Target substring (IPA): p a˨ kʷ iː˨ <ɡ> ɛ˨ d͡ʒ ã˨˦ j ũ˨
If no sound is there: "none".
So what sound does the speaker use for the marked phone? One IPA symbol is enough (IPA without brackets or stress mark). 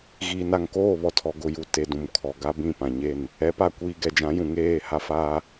ɡ